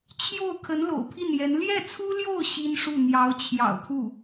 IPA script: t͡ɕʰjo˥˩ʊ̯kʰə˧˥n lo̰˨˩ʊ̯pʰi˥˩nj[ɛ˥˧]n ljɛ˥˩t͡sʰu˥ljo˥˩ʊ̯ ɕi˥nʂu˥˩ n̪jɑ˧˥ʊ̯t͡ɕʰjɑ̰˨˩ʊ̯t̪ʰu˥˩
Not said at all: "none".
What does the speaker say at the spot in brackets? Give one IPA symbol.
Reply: ɛ˧˥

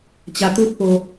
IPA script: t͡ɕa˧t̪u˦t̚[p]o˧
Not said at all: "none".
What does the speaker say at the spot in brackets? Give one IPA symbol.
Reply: p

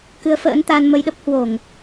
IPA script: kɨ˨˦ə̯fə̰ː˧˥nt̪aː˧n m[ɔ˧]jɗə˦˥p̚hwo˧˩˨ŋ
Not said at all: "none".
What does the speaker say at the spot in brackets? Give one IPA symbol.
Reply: ə˧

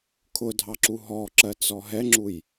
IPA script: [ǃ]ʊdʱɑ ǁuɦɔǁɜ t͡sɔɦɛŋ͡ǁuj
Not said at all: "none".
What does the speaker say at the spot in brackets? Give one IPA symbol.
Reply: kʰ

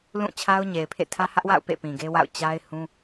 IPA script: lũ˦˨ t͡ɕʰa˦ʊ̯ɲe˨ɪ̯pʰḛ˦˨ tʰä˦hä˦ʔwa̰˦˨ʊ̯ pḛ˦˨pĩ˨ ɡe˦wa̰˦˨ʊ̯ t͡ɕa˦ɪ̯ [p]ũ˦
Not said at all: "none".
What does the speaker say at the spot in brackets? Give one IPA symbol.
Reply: h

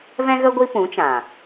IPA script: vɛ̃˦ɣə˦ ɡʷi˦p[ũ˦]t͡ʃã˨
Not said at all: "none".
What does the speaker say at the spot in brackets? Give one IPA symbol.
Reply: ũ˨˦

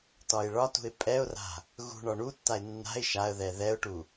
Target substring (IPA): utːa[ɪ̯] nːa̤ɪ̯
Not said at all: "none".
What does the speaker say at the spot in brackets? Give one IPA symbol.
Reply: ɪ̯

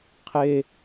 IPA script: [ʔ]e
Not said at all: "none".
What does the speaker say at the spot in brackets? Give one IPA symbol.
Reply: qʰ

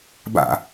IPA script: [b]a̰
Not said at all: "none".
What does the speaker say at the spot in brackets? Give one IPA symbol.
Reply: b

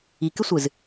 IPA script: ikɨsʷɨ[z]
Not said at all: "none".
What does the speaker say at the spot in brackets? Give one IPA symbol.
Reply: z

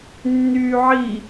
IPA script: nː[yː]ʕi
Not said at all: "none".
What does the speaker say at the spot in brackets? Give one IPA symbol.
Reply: yː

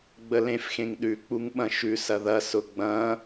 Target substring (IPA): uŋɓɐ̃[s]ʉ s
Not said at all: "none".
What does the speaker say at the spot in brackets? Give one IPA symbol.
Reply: ʃ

